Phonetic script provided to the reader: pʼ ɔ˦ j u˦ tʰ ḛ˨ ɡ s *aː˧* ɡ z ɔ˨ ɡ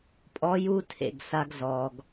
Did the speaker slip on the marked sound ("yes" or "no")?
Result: yes